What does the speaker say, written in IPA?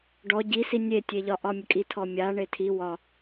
ɖ ɔ ɟ i s i nʲ e tʲ e ʎ ɒ ʔ ɒ mʲ ə kʼ i tʰ ɔ mʲ a ɳ e tʰ i w ɒ

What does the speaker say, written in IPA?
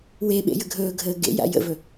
w e ɓ ḛ j ə ɡʱ ɵː ɡʱ əː ɡ ḛ j a̰ j ə̰ v ɵ

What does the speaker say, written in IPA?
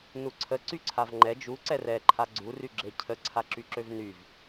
n u ǀʰ ə ǀ y ǀʰ a v ŋ͡ǃ ɛ d͡ʒ u ǀ ɛ r ɛ ǃʰ a ɡ͡ǀ u r y ɡ͡ǁ e cʰ ə ǀʰ a ǁ y ǁ ø v n y v

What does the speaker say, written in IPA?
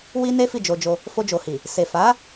w i˦ n e˦ f i˦˨ d͡ʒ o˧ d͡ʒ o˧ | f o˧ d͡ʒ o˨ h i˨ | s e˨ f a˨˦

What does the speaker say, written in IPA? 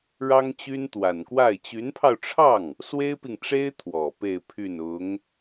ɻ ɑ˥ ŋ t͡ɕ y˥ n t̪ w a˨˩ n k w a˥˩ ɪ̯ t͡ɕ y˧˥ n pʰ ɑ˧ ʊ̯ ʈ͡ʂʰ ɑ˥˩ ŋ | s w e˥ ɪ̯ p i˨ ŋ ʈ͡ʂ e˥ ɪ̯ t̪ʰ w ɔ˨˩ p e˥˧ ɪ̯ pʰ y˥˩ n ʊ˧˥ ŋ

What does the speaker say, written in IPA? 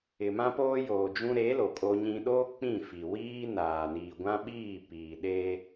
ɪ˨ m ã˦ p oː˦ j oː˨ d͡ʒ ũ˦ ɾ e˨˦ l o˨ kʼ o˦ ɲ ĩ˦ ɗ oː˦ k͡p ĩ˦˨ f i˨ w iː˦ n aː˨ n iː˨ ɡʷ ã˦ ɓ iː˦˨ p iː˨ ɗ eː˦

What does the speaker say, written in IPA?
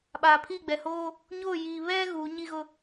ɓ aː˨ pʰ i˦˨ ɡ͡b ɛ˨ h oː˦ | ɲ oː˦˨ j iː˨ β ɛ˦ ɣ uː˨˦ ɲ i˦ ɣ ʊ˦

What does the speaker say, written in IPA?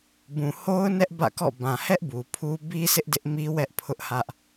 b ũ˨ h o˦ ʊ̯ n ɛ˦ ʔ b ä̰˦˨ k ɔ̰˦˨ b ã˨ h ɛ˦ ʔ b u˨ pʰ u˦ b i˦ sʰ ɪ˦ ʔ d ɪ˦ ʔ m i˦ w ɛ˦ ʔ pʰ ʊ˦ ʔ h ä˦ ʔ

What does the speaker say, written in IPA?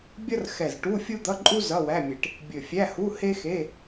bʲ ʌ˥ r x ɛ˧˩ z ʈ u˧˥˧ fʲ u˥ d̪ ʌ˧˥˧ ǃʼ u˥ z ʌ˧˥˧ w æ˧˥˧ mʲ e˧˩ ʈ | bʲ ɵ˧˩ fʲ æ˧˥˧ h u˧˥˧ h e˥ x e˧˥˧

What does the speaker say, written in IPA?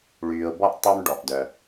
ɭ yː˨ ʊ̯ b ɔ˥ ʔ tˤ y˦ m ɖ ɔ˩ ʔ d œ˩

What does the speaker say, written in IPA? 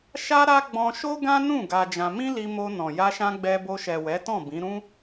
ʃ a˦ ɾ a˦ ɡ͡b ɔ̃˧ ʃ o˦ ɡ ã˦ n ũ˦˨ ɡ a˧ d͡ʒ ã˧ m ĩ˦ l i˧ m o˧ n ɔ̃˨ j a˧ ʃ ã˧ ɡ͡b ɛ˧ b o˧ ʃ ɛ˨ w ɛ˨˦ t ɔ̃˦˨ b ĩ˨˦ ɾ ũ˦

